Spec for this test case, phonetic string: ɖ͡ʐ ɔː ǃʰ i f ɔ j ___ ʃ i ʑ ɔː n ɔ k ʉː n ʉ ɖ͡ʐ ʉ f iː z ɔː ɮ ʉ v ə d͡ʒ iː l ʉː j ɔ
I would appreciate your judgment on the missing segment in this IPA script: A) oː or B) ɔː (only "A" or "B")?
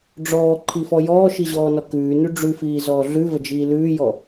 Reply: B